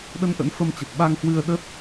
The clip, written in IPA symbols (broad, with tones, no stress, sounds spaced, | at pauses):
ɗ ə˧ n ʔ ə̰˧˥ n f ə˧ m t͡ɕ ə˨˩ t̚ ɓ a˧ ŋ h w ɨ˧ ə̯ ɗ ə˦˥ t̚